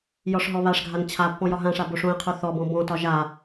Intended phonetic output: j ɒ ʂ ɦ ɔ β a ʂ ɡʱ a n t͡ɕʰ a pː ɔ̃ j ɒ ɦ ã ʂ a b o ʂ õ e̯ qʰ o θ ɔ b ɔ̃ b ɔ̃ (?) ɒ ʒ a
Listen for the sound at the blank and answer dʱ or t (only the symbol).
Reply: t